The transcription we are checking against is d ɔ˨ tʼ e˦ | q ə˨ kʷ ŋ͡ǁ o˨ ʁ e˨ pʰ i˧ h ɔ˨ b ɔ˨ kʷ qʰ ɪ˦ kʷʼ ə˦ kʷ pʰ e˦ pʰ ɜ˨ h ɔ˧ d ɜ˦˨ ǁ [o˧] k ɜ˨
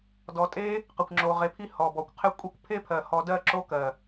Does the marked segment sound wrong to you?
yes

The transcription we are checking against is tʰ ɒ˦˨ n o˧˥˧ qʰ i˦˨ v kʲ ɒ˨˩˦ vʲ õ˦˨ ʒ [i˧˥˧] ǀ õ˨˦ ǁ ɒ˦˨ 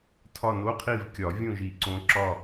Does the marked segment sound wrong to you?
yes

